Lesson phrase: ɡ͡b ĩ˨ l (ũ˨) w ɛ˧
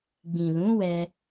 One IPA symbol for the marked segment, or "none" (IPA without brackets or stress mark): ũ˨˦